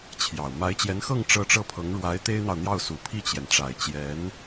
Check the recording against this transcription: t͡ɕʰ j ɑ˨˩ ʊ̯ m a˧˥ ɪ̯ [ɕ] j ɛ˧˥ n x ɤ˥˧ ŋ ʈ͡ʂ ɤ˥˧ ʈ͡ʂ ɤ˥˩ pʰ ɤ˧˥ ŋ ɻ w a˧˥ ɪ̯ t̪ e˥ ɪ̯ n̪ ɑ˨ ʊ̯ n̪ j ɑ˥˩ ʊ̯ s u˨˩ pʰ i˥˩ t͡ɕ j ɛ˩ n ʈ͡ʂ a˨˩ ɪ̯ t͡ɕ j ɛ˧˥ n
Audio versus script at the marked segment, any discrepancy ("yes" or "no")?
yes